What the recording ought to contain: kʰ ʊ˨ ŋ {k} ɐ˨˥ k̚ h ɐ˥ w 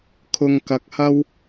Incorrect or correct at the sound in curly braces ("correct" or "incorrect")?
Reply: correct